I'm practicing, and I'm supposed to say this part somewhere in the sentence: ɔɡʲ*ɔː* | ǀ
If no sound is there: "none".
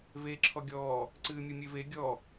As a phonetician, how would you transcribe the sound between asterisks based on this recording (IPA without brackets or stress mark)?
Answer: ɔː